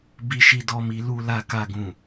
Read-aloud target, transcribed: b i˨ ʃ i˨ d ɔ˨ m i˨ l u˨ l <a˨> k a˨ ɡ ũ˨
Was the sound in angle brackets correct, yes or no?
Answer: yes